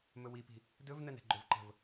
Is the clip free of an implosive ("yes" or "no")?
yes